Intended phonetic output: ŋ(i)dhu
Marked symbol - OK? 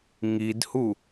yes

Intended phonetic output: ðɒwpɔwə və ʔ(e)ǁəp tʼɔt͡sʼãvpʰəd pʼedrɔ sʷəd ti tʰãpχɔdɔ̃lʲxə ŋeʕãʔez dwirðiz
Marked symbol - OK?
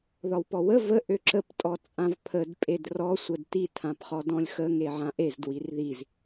no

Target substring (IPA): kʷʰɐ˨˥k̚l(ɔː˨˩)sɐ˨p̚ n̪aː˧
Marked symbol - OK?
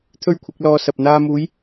no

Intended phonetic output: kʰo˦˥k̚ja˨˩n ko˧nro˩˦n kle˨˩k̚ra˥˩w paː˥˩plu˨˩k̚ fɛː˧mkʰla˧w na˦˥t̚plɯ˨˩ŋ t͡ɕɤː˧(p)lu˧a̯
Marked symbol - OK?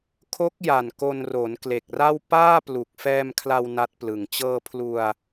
no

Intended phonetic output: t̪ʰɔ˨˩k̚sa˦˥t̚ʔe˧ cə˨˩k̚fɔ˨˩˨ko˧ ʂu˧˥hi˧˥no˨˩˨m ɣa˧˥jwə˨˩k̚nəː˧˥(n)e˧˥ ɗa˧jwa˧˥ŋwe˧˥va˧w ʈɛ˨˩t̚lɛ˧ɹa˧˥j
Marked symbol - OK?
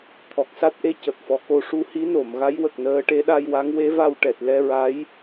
no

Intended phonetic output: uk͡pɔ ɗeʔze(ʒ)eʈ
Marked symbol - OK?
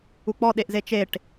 no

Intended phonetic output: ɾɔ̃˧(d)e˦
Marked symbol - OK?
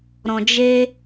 no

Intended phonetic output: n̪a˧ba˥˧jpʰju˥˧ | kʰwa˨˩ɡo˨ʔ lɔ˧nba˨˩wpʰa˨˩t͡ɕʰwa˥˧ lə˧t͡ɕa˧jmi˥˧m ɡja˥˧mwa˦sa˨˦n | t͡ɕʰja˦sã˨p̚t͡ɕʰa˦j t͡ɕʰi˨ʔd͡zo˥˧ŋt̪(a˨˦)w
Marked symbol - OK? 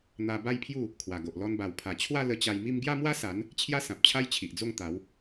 yes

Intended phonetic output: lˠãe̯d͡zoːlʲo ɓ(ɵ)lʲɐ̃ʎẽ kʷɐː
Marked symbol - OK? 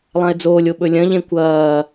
yes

